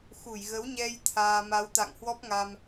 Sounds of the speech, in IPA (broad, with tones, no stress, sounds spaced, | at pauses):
x u˧˩ j ɣ ə˨˦ w ɲ ɛ˧ j t̪ʰ aː˧ m a˨˦ w t̪ a̰˧˨ ŋ h w ɔ˦˥ p̚ ŋ a˧ m